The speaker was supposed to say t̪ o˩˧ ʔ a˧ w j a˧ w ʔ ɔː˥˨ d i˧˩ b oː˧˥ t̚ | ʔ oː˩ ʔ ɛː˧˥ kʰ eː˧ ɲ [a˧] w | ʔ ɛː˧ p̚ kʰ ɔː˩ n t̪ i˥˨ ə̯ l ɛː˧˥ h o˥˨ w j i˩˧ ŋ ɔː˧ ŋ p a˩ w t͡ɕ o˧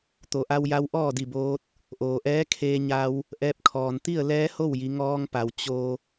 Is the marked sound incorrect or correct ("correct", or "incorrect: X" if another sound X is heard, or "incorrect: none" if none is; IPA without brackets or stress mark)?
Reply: correct